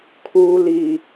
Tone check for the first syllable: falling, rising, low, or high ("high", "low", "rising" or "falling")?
low